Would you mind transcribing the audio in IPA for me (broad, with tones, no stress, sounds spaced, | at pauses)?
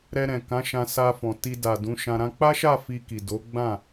ɾ ɛ˧ ɾ ɛ̃˨ k ã˨˦ ʃ ã˧ s a˧ f ɔ̃˨ t i˧ d a˨ d ũ˨˦ ʃ ã˧ ɾ ã˧ k͡p a˦ ʃ a˦˨ f i˧ k i˨ d o˨˦ ɡ͡b ã˦˨